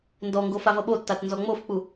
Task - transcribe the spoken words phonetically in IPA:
n d ɔ ŋ ɡ o f a v ʌ ɓ o tː a t n z ɔ ŋ͡m o f k͡p u

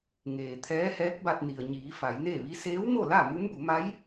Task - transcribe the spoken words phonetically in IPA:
ŋ eː˩ t̪ʰ ɛː˧˥ h ɛː˧˥ k̚ b a˧ t̚ n i˩ ə̯ ɲ iː˩˧ f a˩˧ j n e˥˨ ʋ i˧˥ s eː˧˥ w m o˥˨ l a˥˨ m u˧˥ m b u˩˧ m a˧˥ j

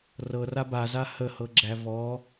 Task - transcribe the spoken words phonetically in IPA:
r ɤ r a b a z a h ə h ɤ ɡ͡ǁ æ v ɔ

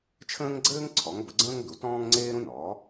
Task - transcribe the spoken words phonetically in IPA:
t͡ʃʰ ə̃ː˥ ŋ ɡ͡ǀ ɘː˥ ŋ ǀʰ ɔ˩˥ ŋ b ə˩˥ ɡ͡ǀ ə̃ː˥ ŋ d u˩˥ t ɔ̃ː˥ ŋ ŋ͡ǀ eː˥ ɾ ũ˥ n ɔː˩˥

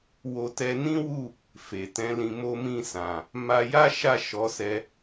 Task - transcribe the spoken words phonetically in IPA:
w o˧ t ɛ˧ n ĩ˦ w u˦˨ | f e˨ t ɛ̃˨˦ l ĩ˧ m o˧ m ĩ˧ s ã˨ | m a˧ j a˦ ʃ a˦˨ ʃ ɔ˨˦ s ɛ˧

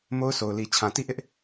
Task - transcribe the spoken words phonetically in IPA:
m o˦ ʊ̯ s o˨ ʊ̯ l i˨ t͡ɕʰ ã˨ t i˦˨ ʔ ɪ˦ ʔ

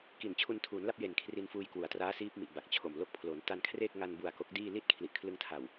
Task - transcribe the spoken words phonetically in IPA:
k i˨˩ n t͡ɕʰ u˧ n tʰ uː˩˦ n l a˥˩ p̚ j e˨˩ n kʰ r i˧ n f uː˧ j k w u˩˦ a̯ t r aː˦˥ s iː˦˥ p̚ m i˨˩ ʔ b a˨˩ k̚ t͡ɕʰ o˨˩ m l o˦˥ k̚ pʰ l o˩˦ n t a˧ n kʰ r e˥˩ k̚ ŋ a˧ n b u˨˩ a̯ k o˦˥ k̚ d iː˥˩ l i˥˩ t̚ kʰ l i˨˩ ʔ kʰ l ɯ˧ ŋ tʰ a˨˩ w

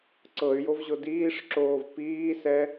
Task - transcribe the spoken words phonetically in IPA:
ǀ ɤ y̯ j o v ʑ o d iː ʂ ǁ oː v p iː s ɛ

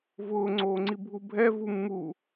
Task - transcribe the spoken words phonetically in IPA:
v ʊː ŋ͡ǀ oː ŋ͡ǀ i bʱ u bʱ ɛ v u mː u

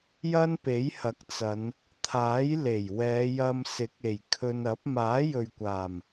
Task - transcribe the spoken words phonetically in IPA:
j ɐ˥ n p e˨˥ j h ɐ˨˥ k̚ t͡s ɐ˨˧ n | t̪ʰ aː˨˥ j l e˨˩ j w ɛː˨˧ j ɐ˧ m s ɪ˨˥ k̚ e˨˩ j kʰ ɵ˧ n ɐ˨˥ p̚ m aː˨˥ j ɵ˨ ɥ kʷ aː˨˩ m

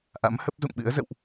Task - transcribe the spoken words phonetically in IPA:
ʔ a̰˧˥ m h ə˦˥ p̚ z ṵ˧˨ ŋ ɓ ɨ̰˧˥ ə̯ z ə̰˧˨ w ʔ

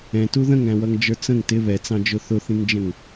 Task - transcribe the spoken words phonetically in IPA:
ɛ̃ t u ð ə̃ ŋ æ̃ w ʌ ŋ d͡ʒ ə˞ t͡s ə̃ ŋ t ɪ β ɛ t͡s ɑ̃ d͡ʒ ʊ θ ʊ θ ĩ ŋ d͡ʒ ə̃ ŋ

